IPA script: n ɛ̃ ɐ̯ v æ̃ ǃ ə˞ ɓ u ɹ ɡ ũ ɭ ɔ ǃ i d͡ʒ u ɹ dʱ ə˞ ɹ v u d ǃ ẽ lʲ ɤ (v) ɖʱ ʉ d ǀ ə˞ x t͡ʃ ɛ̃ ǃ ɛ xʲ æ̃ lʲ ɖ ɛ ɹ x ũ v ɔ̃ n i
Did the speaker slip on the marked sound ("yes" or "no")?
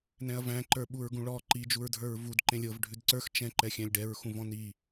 no